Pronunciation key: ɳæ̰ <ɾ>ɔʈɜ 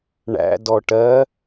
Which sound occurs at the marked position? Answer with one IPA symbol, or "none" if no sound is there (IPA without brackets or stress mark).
d